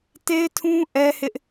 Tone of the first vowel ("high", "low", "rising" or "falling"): high